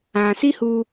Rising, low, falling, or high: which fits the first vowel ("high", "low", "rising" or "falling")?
low